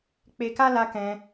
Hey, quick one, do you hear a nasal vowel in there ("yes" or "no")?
yes